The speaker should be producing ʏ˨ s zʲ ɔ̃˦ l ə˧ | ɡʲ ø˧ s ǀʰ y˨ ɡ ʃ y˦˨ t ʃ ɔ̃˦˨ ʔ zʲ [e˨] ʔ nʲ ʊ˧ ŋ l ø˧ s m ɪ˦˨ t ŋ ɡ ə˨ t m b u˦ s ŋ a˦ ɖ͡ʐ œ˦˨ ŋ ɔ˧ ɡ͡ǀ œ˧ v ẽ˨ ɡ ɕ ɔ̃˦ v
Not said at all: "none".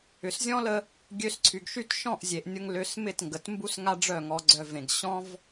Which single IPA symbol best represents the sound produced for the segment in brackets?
e˨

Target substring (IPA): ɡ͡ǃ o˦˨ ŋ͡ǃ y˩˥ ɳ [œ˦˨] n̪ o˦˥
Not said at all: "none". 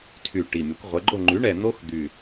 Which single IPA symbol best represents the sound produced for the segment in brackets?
ɛ˦˨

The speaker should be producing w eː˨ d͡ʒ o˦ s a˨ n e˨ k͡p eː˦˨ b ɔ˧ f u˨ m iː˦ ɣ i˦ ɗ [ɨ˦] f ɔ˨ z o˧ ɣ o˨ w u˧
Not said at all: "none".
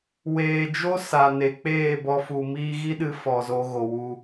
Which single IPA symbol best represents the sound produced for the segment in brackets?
ɨ˧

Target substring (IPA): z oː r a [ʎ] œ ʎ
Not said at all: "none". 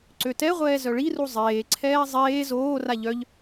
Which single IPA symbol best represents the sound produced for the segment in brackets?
ʎ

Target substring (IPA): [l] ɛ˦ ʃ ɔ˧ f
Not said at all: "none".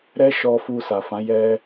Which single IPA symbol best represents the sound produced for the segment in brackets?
ɾ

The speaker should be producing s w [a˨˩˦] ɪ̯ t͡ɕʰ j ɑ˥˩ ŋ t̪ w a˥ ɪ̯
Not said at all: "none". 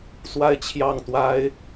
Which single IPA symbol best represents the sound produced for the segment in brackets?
a˥˧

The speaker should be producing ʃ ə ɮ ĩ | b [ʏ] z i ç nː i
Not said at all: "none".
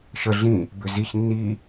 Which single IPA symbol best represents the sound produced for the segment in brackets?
ʏ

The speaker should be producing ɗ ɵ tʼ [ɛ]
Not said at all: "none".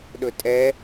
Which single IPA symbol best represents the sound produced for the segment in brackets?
ɛ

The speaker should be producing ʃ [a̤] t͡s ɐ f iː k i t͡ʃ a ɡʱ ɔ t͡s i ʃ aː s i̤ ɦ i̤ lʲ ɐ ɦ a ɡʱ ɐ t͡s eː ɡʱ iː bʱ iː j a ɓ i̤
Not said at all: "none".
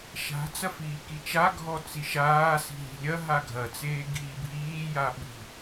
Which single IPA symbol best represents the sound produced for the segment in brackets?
a̤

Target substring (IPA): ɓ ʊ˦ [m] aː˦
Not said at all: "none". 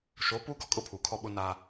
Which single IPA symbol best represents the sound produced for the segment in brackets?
n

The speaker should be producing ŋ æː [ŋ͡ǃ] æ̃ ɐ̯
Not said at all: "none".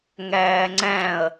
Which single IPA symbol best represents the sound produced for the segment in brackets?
ŋ͡ǀ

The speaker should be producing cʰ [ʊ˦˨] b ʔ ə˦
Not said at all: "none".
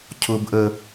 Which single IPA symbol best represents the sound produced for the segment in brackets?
ʊ˦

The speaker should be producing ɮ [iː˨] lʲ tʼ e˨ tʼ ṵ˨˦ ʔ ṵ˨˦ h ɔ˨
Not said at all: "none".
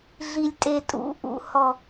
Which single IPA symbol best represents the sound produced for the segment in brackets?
i˨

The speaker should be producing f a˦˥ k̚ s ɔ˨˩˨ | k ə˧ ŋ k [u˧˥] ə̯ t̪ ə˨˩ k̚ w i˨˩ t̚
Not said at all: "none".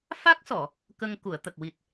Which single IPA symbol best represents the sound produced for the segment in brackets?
u˨˩˨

